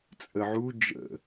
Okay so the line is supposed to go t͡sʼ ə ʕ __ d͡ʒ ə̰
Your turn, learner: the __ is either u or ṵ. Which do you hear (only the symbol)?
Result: u